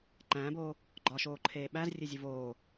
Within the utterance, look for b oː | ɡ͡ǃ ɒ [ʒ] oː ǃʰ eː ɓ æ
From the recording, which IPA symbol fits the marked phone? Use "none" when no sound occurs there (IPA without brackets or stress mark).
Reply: ʃ